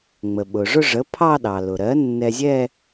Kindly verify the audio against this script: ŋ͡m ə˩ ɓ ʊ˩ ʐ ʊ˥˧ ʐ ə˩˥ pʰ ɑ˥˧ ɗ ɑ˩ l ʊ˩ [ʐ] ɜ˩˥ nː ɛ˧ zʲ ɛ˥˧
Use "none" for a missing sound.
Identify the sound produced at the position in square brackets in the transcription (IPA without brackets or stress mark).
ɾ